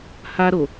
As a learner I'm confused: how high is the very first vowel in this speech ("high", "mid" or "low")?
low